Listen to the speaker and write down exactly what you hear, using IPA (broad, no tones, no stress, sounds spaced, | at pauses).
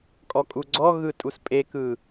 kʼ ɔ kʼ u ɡ͡ǀ ɔ ɣ ɯ tʼ u s pʼ e k ɯ